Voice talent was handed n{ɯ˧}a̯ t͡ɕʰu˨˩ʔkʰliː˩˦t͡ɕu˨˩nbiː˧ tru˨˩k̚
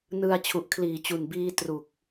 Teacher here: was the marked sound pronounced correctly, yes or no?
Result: yes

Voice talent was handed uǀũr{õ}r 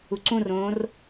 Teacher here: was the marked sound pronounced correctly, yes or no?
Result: no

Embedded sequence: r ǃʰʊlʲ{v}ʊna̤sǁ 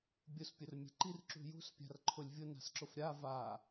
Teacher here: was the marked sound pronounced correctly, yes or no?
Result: no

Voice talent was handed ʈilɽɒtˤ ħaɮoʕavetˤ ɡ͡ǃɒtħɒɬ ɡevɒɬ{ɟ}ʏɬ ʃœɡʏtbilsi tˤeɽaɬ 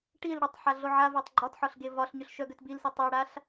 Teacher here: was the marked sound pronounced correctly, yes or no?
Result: no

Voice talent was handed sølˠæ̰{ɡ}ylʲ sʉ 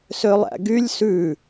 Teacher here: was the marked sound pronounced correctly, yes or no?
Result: yes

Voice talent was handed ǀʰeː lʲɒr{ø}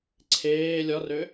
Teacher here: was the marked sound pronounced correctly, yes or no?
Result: yes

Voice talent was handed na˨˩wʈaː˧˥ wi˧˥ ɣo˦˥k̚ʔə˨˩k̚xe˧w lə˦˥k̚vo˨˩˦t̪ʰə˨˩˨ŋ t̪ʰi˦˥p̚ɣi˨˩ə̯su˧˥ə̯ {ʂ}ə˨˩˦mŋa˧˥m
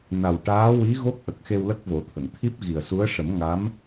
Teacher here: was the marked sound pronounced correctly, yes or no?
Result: yes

